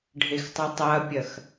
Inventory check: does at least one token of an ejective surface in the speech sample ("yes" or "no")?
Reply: no